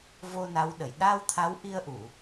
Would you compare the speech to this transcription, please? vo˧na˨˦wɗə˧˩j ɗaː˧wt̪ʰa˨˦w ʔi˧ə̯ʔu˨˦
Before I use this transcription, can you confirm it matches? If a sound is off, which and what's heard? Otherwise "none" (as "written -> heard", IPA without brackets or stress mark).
u˨˦ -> u˧˩˨